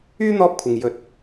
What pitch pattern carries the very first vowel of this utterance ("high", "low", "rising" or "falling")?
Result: high